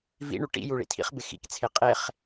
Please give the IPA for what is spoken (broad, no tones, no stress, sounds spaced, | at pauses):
v ḭ ɳ u ʈ ḭ j u ɭ ḭ tʰ ḭ χ b ɪ x ḭ k t͡sʰ e qʼ e χ